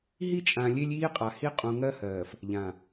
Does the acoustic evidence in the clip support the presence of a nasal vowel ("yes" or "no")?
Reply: yes